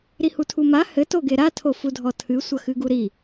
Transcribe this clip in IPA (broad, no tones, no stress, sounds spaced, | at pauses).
ɾ i h u tʰ u m a h ɘ t o ɡ e ɾ a tʰ o f u dʱ ɔ tʰ ɨ sʷ ɐ x ɨ ɡ u ɾ i